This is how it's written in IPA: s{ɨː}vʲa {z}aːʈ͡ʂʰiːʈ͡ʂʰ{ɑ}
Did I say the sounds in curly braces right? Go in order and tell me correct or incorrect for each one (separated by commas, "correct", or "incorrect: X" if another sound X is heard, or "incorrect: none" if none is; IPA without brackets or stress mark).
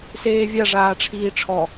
incorrect: eː, incorrect: ʐ, incorrect: ɔ